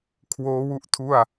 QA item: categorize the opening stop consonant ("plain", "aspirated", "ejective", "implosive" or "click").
aspirated